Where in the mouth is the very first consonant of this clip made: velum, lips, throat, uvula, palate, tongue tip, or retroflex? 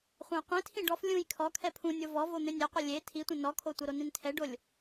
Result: uvula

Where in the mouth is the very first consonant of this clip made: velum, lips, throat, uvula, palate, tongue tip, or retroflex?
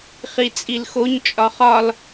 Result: uvula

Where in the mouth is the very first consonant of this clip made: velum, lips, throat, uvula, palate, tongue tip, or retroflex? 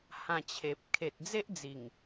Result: throat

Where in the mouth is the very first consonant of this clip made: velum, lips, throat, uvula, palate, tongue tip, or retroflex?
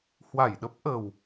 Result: throat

